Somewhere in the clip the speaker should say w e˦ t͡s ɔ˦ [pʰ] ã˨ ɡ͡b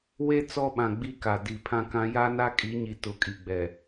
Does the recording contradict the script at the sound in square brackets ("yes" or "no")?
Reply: yes